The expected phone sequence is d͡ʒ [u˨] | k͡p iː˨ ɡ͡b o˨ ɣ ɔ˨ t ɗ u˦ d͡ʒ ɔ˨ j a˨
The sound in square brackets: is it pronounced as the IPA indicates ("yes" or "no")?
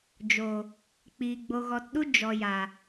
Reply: no